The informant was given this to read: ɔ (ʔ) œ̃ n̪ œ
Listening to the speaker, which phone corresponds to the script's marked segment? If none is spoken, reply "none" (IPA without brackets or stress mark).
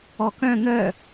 k